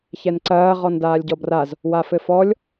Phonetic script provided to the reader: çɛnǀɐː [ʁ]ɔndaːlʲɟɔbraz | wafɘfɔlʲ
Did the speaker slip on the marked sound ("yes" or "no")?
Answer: no